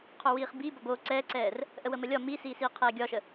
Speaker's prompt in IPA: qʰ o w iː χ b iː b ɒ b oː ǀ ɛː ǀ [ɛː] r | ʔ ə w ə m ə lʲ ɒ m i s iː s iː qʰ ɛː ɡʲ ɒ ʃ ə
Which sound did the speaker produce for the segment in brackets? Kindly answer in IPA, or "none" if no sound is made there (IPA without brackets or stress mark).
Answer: ɛː